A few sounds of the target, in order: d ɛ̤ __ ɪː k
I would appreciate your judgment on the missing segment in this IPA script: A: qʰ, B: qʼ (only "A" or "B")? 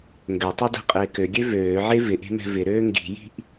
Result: B